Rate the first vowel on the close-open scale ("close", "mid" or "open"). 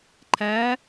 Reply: open